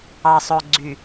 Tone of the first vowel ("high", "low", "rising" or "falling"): low